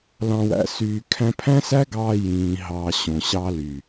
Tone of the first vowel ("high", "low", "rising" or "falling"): low